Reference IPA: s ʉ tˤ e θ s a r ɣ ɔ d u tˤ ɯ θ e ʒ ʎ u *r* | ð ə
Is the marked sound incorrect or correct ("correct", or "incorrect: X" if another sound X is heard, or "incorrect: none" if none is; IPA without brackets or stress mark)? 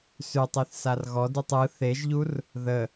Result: correct